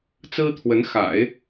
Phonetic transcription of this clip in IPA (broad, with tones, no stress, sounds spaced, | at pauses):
t͡s ɹ̩˥ t̪ʰ w ə˧˥ n x a̰˨˩˦ ɪ̯